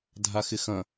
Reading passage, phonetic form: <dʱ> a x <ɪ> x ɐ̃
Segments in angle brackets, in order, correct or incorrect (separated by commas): correct, correct